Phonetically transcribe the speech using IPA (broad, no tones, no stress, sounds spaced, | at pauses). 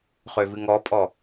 χ ø v ɨ ŋ ɔ pʼ ɔ